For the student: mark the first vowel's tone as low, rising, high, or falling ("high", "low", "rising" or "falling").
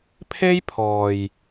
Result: high